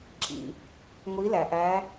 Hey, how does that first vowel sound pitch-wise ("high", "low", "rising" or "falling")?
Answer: low